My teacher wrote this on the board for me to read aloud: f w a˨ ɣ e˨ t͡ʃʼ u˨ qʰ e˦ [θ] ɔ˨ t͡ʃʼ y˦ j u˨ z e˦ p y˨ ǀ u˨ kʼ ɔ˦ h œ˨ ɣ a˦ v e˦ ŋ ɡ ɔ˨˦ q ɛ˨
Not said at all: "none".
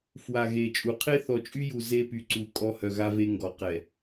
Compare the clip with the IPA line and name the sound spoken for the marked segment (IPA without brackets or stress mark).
θ